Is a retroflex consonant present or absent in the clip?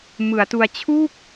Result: absent